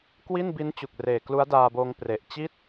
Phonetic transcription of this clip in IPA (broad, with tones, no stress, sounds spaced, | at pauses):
k w i˥˩ n b i˦˥ n t͡ɕ u˨˩ k̚ r eː˨˩ k l u˦˥ a̯ d aː˧ b oː˧ ŋ p r e˨˩ ʔ t͡ɕ i˥˩ t̚